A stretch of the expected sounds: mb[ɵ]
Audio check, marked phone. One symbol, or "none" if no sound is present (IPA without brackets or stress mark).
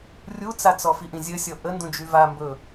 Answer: ɵ